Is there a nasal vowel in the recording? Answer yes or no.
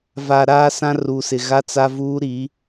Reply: yes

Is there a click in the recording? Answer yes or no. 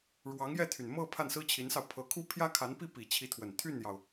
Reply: no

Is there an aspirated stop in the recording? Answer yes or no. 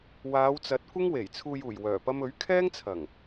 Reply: yes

